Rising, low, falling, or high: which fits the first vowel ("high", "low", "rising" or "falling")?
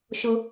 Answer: high